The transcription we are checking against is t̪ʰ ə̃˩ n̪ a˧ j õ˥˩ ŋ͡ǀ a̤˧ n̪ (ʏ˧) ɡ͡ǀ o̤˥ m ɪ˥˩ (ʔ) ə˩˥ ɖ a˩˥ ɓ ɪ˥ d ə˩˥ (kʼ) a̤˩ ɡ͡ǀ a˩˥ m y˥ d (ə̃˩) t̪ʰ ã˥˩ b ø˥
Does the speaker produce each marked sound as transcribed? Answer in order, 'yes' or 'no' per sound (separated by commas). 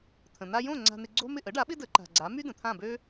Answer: no, yes, no, yes